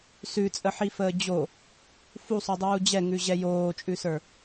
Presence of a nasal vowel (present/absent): absent